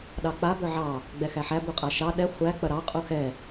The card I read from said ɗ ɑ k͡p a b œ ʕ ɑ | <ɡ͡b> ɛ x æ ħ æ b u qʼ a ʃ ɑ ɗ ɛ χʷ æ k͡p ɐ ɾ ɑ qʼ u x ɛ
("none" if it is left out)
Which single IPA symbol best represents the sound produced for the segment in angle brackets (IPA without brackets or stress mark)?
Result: ɡ͡b